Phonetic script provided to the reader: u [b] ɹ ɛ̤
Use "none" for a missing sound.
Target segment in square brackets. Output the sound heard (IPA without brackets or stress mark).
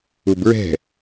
b